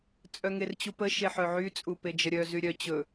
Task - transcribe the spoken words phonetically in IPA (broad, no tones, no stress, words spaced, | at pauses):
t͡sʼœŋert͡ɕupə ʃeħœʕy t͡sʼuped͡ʒəɾʲœ zyɾʲœ t͡ɕɵ